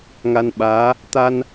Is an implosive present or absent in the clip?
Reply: present